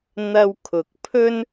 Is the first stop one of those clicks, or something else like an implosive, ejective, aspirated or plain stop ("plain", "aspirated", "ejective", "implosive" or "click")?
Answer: aspirated